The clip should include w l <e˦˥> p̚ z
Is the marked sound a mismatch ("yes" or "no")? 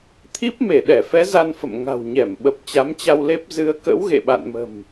no